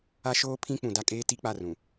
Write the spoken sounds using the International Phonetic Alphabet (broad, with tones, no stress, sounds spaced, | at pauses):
a˦ ʃ oː˦ pʰ ĩ˦ k͡p ũ˨ d a˦ kʼ eː˦ t i˦ k͡p a˦˨ r ũ˨